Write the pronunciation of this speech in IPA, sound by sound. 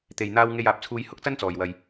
t̪ e˨ j n̪ aː˧ w ŋ e˧ j aː˨ p̚ t͡sʰ uː˧ j h ʊ˥ k̚ t͡s ɐ˥ n t͡s ɔː˨ j w ɐ˧ j

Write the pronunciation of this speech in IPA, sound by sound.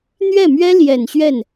n̪ ɥ ɛ˥˩ m ɥ ɛ˥ l j ɛ˨˩ n ɕ ɥ ɛ˥˩ n

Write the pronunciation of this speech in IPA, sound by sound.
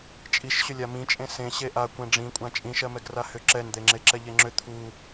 t͡ʃʼ i ʃ ɕ ʏ lʲ a m ĩ t͡ʃʼ ẽ s ẽ ɕ e ʔ a kʷ ɛ̃ ɖ͡ʐ ĩ kʷʼ ã t͡ʃʼ ĩ ʃ ɜ m ɛ ɡ r a h ʏ ǁ ɛ n d̪ e ŋ͡ǁ e ǁ ɛ ʎ e ŋ͡ǁ ʏ t̪ʰ u

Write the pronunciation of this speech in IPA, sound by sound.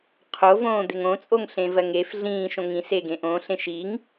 qʰ o v õː d̪ e ŋ õ t͡sʼ o ŋ ɬ ẽ v ɜ ŋ e f ɮ ĩː ʃ õ ŋ ĩ s e ɡ ẽ ʔ õ ɬ ẽ ʃ i ŋ

